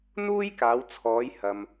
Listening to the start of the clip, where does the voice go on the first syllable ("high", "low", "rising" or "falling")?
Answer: high